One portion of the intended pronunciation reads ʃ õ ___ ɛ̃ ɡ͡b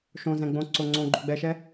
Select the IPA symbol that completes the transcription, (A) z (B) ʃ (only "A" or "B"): A